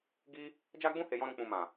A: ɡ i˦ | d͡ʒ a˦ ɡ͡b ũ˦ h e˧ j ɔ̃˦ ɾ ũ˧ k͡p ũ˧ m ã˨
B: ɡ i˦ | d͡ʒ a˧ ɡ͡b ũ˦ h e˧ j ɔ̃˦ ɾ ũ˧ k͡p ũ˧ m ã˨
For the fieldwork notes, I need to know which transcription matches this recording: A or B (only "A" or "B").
A